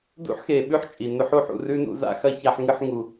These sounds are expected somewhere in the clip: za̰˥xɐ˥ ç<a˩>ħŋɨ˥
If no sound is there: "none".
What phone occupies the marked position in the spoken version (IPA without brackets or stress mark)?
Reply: a˥